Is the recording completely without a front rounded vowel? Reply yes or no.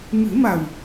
yes